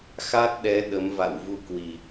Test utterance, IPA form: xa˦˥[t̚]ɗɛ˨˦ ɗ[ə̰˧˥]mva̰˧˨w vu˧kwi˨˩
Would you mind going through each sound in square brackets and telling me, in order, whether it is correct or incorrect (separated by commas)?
correct, incorrect